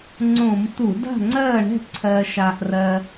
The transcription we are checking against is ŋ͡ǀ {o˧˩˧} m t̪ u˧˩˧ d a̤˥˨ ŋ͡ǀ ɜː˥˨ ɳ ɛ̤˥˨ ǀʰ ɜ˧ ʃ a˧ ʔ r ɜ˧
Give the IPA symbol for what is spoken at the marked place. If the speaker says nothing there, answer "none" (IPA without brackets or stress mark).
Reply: õ˧˩˧